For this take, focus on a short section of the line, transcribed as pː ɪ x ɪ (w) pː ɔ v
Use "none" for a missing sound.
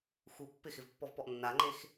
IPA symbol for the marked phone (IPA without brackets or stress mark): v